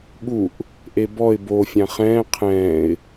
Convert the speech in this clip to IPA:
ɠuʔ | ʔebɔɪ̯ bo fʲãχɛ̃ː qʰɛ̃ːɪ̯

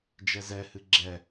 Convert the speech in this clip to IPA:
d͡ʒɛzɛhɨ ɡ͡ǁɛ

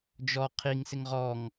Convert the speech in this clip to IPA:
d͡ʒɔ qʰiŋsɪŋ ʁɔŋ

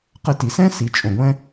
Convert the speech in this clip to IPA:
qɘ˧ ti˨sɛ̃˦ si˨ t͡ʃʼõ˨ɡʷɛ̃˦

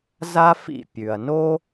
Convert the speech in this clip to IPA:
za˥fḭ˥˩pʲʉ˩ɐ̯no˥

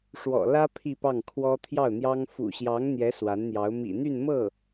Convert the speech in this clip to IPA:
ʂwɔ̰˨˩ lä˥ pʰi˥˧pɑ˥˩ŋ kʰwɔ˥ t̪ʰjɑ˥˩ʊ̯n̪jɑ˥ŋ fṵ˨˩ɕjɑ˧˥ŋ n̪jɛ˧˥ swa˧˥nn̪jɑ˧˥ʊ̯ mḭ˨˩n̪y˥˧nmɤ˥˩

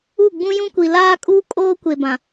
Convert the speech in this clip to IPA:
u˦˨ɡ͡bũ˦jũ˦ kʷi˨laː˦ kʼuː˦kʼoː˦ kʷe˨bã˨

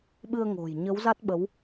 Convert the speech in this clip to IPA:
ɓɨ˧ə̯ŋo̤˨˩j ɲə˨˦wza˦˥t̚ɓə˨˦w

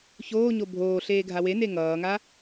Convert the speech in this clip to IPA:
çoːɲo bʱoːɬeːɡʱa wene ŋʌːŋa

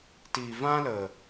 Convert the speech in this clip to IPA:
tiː˨vã˦lə˨

